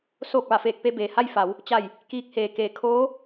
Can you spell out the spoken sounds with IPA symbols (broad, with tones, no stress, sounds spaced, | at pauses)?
s oː˧˩ k̚ ʋ a˧˩ f eː˧˩ k̚ p e˥˨ b eː˩ h a˥˨ j f a˩˧ w | t͡ɕ a˧˩ j | k iː˧ k̚ h eː˩ k eː˧˩ kʰ oː˧˥